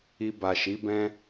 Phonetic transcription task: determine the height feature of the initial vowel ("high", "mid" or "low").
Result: high